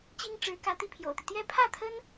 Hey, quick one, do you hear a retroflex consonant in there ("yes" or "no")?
yes